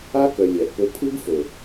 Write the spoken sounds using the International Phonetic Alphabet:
a˦ k œ˨ lʲ æ˨ ʔ p o˦ pʰ ɯ˦ ɡ f o˨

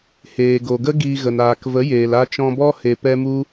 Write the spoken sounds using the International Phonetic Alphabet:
h eː˨ ɡ o˨ ɡ ə˦ ɡ iː˧ ɣ ə˨ n aː˨ k v ə˨˦ j eː˨ l a˧ t͡ʃ ɔ̃˧ b ɔ˦ h e˧ p ɛ˦ m u˦

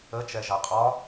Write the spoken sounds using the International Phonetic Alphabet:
ə t͡ʃ ɛ ʒ a qʼ ɒ

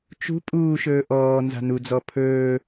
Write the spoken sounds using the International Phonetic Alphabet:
t͡ʃ ṳ pʼ uː ʃ ɵː ʔ ɔː n z a̤ n u d͡z ɔ pʰ ɵː

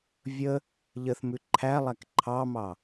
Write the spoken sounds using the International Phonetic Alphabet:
vʲ ə | ʎ ə θ m ʉ ǃʰ æ lˠ æ k ǃʰ ɑ m ɑ

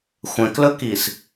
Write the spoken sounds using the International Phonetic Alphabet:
xʷ ɛ̃ k l ɵ k i s

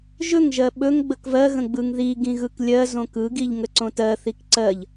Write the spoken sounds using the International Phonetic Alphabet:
ʒ ɵ ŋ ʒ ɜ ɓ ɵ ŋ ɡ͡b ə k v ɜ ɣ ə̃ ɡ͡b ɯ ŋ ð i ɡ ĩ ɣ ɯ k lʲ ɜ z õ k ɯ ɡ i ʎ ŋ ə ǀ õ t ɜ θ i k ǀ ɜ ʎ

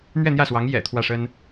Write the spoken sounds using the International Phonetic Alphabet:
n̪ ɥ ɛ˥˧ n̪ j ä˥˩ s w ɑ˧˥ ŋ j ɛ̰˨˩ t̪ʰ w ä˥˩ ʂ ə˥ n

